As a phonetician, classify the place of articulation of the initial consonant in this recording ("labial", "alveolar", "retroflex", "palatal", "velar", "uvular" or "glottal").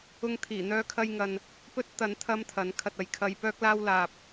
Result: velar